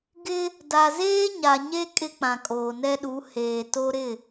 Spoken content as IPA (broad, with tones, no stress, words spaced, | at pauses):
ɡɪ˦ | da˨zeː˦ ɲa˨ɲe˦ kʼɪ˦k͡pã˨kʼoː˨nɛ˦ ɗu˨˦heː˨to˦ ɾɪ˦˨